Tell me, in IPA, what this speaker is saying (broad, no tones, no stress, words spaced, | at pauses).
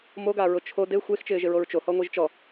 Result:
moɡaɹʊ t͡ʃʰo de xʷext͡ʃɪːʒɪɹoɹ t͡ʃohɔŋʷiʒ t͡ʃɔ